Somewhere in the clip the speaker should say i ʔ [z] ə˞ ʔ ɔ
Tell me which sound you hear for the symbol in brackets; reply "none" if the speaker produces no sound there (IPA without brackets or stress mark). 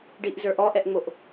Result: z